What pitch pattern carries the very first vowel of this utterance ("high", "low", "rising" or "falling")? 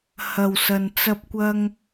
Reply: low